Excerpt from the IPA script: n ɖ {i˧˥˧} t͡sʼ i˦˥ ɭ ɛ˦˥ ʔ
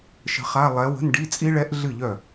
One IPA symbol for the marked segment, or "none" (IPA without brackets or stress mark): i˧˥˧